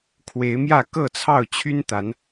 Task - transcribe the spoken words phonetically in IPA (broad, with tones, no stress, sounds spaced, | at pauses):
kʰ w e˨˦ ɪ̯ m j ä˥˨ k ɤ˥˨ t͡sʰ ɑ˥˨ ʊ̯ t͡ɕʰ y˦ n t̪ a˨˦ n